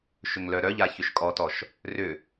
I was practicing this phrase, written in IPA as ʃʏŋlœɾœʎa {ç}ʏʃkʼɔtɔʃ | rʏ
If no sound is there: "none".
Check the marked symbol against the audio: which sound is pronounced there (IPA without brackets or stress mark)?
ç